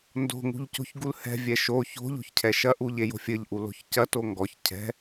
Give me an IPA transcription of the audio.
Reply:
n d o̤ ŋ ṳ ʎ c o̤ ç ɡ u l h ɛ̤ vʲ ɛ ʃ o ç o̤ ʎ o̤ ç cʰ ɛ ʃ ɐ ʔ u ʎ e j o̤ fʲ ɘ ʎ ʔ u l o̤ ç c ɐ t o ŋ ɡ ɔ ç cʰ ɛ̤

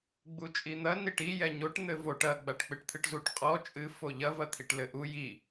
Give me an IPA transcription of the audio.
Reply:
ɡ͡b u t͡ʃʼ i n̪ ɐ n i ʈ i j ɛ ɲ o ʈ n̪ ɘ v o ʈ ɐ ɡ͡b a ʈ k͡p ɨ ʈ t̪ʰ ɨ ʈ z u ʈ qʼ ɔ t͡ʃʼ ɨ f o ʎ ɐ v ɐ t̪ʰ i ʈ l ɘ ʔ u j i

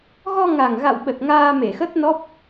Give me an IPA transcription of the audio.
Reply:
ɣ ɔ˧ ŋ a˨˩ ŋ ɣ a̰˧˨ w ɓ ə˨˩ t̚ ŋ aː˧ m e˧˩ x ə˦˥ t̚ n ɔ˦˥ p̚

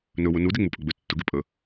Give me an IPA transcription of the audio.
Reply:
n ɵ w ʊ n u d e ŋ͡m u pʼ ɵ ɡ͡b ʏ tː ʊ ɡ e pʼ ə

